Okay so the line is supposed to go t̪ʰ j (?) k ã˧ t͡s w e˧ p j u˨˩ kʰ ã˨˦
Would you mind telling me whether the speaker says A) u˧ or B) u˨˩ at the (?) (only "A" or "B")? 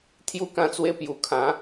A